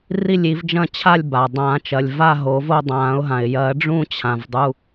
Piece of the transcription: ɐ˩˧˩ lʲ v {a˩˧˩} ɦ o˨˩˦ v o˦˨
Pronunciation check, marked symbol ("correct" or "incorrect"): incorrect